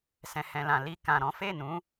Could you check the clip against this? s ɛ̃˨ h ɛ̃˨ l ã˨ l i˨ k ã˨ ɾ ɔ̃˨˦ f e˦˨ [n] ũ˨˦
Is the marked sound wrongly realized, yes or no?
no